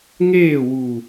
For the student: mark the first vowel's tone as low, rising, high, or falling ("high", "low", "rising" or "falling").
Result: falling